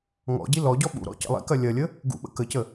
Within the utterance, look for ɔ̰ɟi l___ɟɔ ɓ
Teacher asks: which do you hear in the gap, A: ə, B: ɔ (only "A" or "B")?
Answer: B